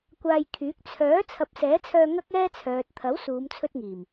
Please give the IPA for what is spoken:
kʷ aː˧ j kʰ yː˨˥ k̚ t͡sʰ œː˨˥ t͡sʰ ɐ˨˥ p̚ s ɛː˨˥ t͡sʰ œː˧ ŋ ɐ˥ k̚ ɛː˥ t͡sʰ œː˨ t̚ t̪ʰ ɐ˨˥ w s uː˨˧ m t͡sʰ ɵ˧ t̚ ŋ iː˨˩ m

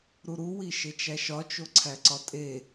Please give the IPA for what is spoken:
ɾ u ɾ u w i ʃ e t͡ʃ æ ʃ ɒ t͡ʃ o ǀʰ æ ǀ ɒ tʼ e

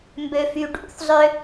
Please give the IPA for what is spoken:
m b ø f y ɖ ṵ θ zˤ ø

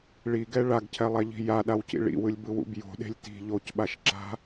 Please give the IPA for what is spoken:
ɭ i ɡ ɛ ɭ a ɡ cʰ ɛ lˠ ɛ ʎ i̤ j a ɗ a w c ḭ ɭ ḭ w ɯ lʲ b ɯ w ṵ b j o̤ ɗ e̤ lʲ t i̤ ʎ o c ɓ a ʃ ǁ a̤

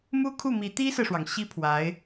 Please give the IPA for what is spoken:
m u˥ kʰ u˥˩ m i˧˥ t̪ i˥ s ɹ̩˨ ʂ w ɑ˩ ŋ ɕ i˥ pʰ w a˧˥ ɪ̯

